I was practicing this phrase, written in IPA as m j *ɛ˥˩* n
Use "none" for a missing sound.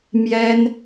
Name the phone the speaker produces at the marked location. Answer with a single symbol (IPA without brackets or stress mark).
ɛ˥